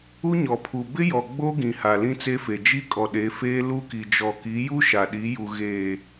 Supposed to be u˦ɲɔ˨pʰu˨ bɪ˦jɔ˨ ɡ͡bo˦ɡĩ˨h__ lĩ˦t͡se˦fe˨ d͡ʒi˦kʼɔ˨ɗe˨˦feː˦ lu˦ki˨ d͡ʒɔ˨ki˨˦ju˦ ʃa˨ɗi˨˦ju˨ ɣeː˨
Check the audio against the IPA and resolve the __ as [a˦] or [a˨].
a˨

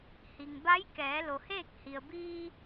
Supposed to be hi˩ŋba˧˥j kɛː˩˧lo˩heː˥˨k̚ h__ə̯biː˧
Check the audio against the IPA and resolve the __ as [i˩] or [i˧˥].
i˩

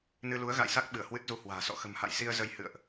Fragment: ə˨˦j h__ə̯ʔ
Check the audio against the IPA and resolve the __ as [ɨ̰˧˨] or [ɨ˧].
ɨ̰˧˨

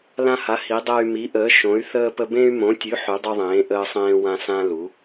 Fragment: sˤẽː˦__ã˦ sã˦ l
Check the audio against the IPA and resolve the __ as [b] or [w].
w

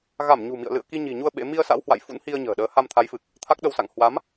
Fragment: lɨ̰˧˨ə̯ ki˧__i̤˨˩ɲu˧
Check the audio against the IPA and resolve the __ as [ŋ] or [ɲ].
ɲ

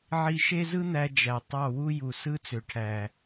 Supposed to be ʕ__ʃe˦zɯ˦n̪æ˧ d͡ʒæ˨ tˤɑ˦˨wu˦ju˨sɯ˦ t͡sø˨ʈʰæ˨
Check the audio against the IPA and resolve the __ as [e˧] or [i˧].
i˧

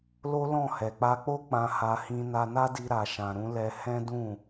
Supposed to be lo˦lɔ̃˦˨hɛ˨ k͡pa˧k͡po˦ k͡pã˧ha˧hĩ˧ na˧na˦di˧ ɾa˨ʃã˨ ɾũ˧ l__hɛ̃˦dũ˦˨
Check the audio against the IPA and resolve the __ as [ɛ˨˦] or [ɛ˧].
ɛ˧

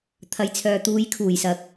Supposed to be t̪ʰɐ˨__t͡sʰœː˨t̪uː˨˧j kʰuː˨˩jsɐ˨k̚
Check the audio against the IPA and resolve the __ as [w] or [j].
j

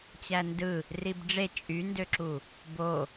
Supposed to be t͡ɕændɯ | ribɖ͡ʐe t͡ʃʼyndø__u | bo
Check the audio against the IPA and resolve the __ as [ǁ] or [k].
ǁ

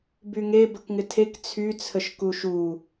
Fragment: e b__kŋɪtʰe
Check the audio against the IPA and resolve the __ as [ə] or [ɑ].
ə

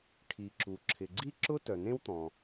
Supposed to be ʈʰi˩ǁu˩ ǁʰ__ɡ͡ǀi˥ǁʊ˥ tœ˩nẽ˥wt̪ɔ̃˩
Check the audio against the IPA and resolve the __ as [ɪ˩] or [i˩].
ɪ˩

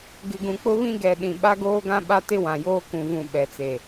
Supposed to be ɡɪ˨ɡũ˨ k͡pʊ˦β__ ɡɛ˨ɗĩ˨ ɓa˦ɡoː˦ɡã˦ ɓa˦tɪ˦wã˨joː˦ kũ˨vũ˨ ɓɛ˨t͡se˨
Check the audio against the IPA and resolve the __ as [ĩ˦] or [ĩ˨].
ĩ˦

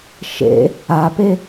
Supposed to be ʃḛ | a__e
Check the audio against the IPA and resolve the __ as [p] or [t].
p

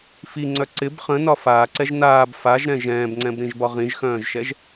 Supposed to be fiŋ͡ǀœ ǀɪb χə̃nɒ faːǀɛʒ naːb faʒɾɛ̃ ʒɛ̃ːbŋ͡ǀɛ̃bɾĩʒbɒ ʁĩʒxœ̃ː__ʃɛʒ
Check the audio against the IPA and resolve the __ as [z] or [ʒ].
ʒ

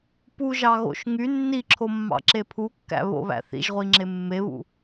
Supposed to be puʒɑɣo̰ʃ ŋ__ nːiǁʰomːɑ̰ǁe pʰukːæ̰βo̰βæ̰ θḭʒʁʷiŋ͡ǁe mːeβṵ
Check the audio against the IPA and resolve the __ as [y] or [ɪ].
y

